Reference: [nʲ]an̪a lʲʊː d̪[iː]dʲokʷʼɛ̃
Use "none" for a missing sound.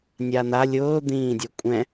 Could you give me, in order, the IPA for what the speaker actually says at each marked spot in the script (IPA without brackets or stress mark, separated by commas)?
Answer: nʲ, ĩː